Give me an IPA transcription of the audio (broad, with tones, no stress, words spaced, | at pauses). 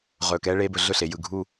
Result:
ʁɵː˧˩kɛː˥ ɭeː˥bɵ˧ ɮɵ˥˧ɬe˩˧jɯ˧˩ ɡʱu˥˧